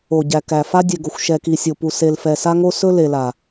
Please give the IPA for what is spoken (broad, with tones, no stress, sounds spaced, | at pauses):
o˨ ɟ æ˨ k æ˨ f a˦ dʲ ɛ˨ ɡ o˨ xʷ ʃ ɛ˨ k i˨ sʲ o˨ p u˨ s e˨ l f ɛ˨ s a˦ ŋ o˦ s ɵ˦ l e˨ l a˨